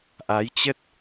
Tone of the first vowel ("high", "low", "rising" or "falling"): rising